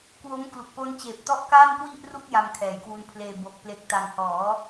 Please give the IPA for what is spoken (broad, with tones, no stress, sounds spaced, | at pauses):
k w o˦˥ m k l u˨˩ k̚ p o˦˥ n t͡ɕ eː˨˩ p̚ t ɔ˦˥ ʔ k aː˥˩ n k w i˥˩ ʔ r u˥˩ k̚ j a˧ m kʰ ɛː˨˩ j k w u˧ n pʰ l eː˧ b o˨˩ k̚ p l e˨˩ k̚ t a˨˩ ŋ h ɔː˩˦